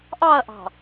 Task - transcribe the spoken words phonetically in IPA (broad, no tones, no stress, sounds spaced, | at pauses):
ʔ ɑ ɐ̯ ʔ ɑ̤